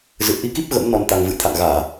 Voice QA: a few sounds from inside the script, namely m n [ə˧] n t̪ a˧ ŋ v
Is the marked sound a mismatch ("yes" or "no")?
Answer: yes